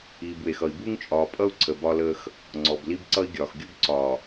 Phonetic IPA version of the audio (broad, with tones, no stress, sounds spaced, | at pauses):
iː˨ b w e˨ x ʌ˨ i̯ b u˦ ŋ t͡ʃʼ ɒː˨ pʼ ʌ˦ u̯ ǀʰ ə˨ b ɒ˦ l əː˦ x | ŋ͡ǀ ɔ˨ b l i˦ b ǀ ʌ˦ i̯ ɡʲ ɒː˨ x ɡʲ u˦ b ǀ ɒː˨